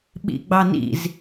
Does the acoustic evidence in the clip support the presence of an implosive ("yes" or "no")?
yes